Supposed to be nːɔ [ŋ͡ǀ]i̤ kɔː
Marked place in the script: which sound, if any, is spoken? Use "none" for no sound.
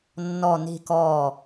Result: n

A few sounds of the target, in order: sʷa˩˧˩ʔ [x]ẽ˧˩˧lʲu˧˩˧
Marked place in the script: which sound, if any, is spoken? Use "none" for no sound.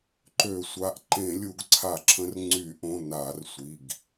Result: ǃ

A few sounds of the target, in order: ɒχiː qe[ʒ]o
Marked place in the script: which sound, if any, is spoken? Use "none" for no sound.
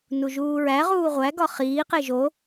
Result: ʒ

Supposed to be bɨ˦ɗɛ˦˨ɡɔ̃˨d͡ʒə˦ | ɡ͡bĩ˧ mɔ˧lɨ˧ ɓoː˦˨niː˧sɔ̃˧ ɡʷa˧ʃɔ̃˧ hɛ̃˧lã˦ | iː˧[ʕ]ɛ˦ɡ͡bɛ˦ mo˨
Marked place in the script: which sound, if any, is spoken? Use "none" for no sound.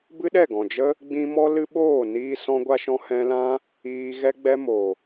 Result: ɣ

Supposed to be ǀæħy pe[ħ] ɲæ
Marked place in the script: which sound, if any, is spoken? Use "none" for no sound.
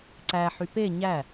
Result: none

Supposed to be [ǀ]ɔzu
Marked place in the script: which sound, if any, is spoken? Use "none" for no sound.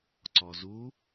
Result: ǀ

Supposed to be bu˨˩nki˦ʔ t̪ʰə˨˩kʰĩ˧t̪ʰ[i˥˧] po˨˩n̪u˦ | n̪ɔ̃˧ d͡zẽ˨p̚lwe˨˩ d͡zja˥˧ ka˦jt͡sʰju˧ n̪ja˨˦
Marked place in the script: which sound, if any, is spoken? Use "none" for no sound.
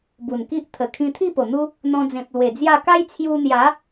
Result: i˥˧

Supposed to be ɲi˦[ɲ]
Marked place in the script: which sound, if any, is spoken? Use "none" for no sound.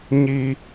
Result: none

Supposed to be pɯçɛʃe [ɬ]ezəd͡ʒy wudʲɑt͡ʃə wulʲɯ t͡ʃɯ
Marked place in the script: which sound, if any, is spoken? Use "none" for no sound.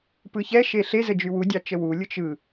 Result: ɬ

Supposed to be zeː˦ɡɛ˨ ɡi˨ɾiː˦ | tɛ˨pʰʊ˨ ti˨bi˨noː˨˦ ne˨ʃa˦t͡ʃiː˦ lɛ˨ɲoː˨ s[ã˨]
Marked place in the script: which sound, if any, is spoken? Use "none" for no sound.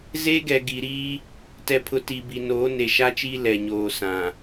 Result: ã˨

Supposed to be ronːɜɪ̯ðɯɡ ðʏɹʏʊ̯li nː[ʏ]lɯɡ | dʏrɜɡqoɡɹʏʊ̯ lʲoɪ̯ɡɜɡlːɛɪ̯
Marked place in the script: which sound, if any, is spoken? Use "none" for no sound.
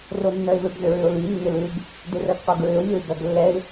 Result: ʏ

